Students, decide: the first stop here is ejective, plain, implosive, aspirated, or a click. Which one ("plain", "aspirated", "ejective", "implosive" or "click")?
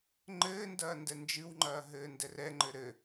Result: click